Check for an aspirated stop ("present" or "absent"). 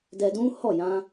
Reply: absent